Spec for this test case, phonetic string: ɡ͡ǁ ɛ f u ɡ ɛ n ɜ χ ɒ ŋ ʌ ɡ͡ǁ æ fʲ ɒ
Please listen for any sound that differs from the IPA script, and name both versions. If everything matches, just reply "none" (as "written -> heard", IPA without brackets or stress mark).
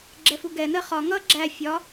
none